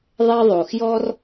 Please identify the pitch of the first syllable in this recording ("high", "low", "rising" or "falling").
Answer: high